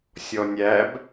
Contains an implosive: no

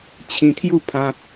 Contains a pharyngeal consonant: no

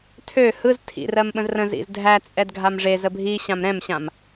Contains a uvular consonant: no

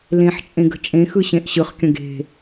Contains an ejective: yes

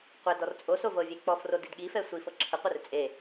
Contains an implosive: yes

